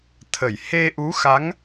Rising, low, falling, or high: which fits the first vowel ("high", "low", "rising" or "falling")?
low